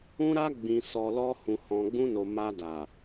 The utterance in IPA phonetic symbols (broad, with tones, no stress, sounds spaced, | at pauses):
ũ˧ ɾ a˧ ɡ͡b ĩ˨ s ɔ˨ l ɔ˧ h ũ˨ h ɔ̃˨ ɡ͡b ũ˧ n o˨ m a˧ d a˨